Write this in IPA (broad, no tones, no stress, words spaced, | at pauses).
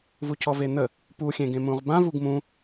vucʰɔven̪ə | puxʲẽ ɡẽmũʁbã vuɡmũ